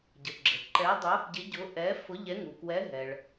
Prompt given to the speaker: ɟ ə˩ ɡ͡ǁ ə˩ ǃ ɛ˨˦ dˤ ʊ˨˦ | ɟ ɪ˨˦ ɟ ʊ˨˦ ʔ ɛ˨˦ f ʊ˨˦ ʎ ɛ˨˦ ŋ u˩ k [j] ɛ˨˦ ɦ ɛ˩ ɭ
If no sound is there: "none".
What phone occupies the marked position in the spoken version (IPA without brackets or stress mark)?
w